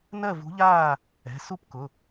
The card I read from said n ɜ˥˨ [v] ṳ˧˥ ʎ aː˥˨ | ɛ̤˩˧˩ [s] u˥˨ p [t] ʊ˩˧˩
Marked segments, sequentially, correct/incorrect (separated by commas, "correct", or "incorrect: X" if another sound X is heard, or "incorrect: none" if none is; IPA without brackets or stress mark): correct, correct, incorrect: k